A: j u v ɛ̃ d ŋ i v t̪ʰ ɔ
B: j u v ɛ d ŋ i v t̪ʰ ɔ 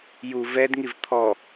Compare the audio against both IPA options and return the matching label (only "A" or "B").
B